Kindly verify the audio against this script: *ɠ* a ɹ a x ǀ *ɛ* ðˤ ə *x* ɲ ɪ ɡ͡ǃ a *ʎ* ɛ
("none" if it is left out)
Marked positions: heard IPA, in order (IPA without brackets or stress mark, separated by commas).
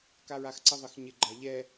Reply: k, ə, x, ʎ